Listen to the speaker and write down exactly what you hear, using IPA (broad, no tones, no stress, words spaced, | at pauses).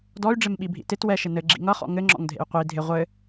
dɔy̯ɖ͡ʐɪmɓibʱḭ tɪt wɛʃɪ nɘɡ͡ǁḭ ŋʌχɔ̰ ŋɘŋ͡ǁɔ̰ŋdʱḛy̯ qʷi dʱɪ ʁʷɘ